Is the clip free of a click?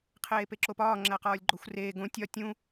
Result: no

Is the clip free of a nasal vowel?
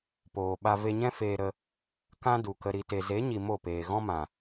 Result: no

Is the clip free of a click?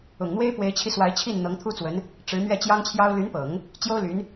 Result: yes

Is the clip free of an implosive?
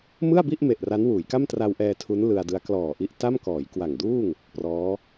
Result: yes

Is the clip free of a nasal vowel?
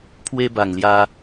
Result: yes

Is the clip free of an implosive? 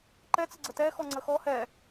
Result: yes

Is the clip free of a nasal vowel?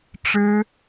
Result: yes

